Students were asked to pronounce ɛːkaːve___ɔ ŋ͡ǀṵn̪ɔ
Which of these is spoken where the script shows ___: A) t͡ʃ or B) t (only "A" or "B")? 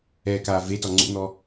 B